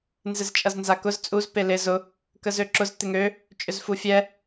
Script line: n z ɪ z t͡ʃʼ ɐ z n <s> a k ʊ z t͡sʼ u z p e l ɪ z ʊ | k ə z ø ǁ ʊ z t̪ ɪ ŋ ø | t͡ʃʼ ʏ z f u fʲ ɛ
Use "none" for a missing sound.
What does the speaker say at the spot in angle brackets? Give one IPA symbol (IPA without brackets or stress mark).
z